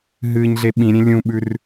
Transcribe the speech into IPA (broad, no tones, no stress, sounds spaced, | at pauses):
ɦ ɨː ɲ ɮ e ɓ ĩ ɾʲ ẽ lʲ ũ ɓ ʉ r